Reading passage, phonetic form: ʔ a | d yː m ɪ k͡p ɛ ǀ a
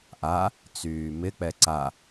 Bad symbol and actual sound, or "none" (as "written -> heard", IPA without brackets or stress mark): d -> t͡s